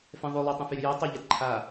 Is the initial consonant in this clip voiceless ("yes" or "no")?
yes